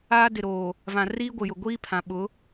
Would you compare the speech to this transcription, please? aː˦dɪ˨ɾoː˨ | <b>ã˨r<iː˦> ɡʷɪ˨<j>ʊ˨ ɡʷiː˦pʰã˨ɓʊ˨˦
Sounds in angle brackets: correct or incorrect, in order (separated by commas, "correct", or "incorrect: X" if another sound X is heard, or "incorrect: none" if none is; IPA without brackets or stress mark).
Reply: incorrect: v, correct, correct